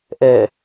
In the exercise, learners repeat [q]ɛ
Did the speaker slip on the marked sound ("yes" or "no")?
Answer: yes